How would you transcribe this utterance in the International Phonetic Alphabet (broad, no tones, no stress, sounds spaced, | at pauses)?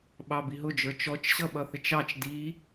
ɓ ɑ b i ɦ ʊ d͡ʒ ə˞ t͡ʃ ɔ t͡ʃ ɕ ʌ ɓ ʌ θ ɪ t͡ʃ ɑ t͡ʃ d i